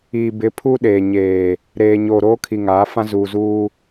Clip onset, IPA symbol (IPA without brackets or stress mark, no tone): iː